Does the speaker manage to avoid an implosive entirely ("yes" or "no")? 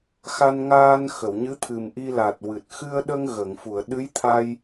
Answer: no